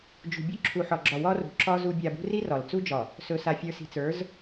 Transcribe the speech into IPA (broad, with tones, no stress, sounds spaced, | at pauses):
d͡ʒ ṳ˨ bʲ ɵ˦ ǁʰ u˨ ħ ɒ˨ ɡ͡ǁ ɒ˨ w ɒ˦ r ṳ˨ ǁ ɒ˦ z u˦ bʲ a˨ b ṳ˦ r i˦ r ɒ˨ l t͡s u˦ d͡ʒ ɒ˨ | s ɵ˨ s a˨ fʲ ə˞˨ s i̤˨ t͡s ə˞˨˦ z